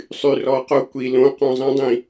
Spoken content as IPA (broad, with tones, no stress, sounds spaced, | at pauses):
sˤ y˨ r ɔ˨˦ q o˧ kʷ i˨ l õ˨˦ q õ˨ zˤ ĩ˧ dˤ ĩ˨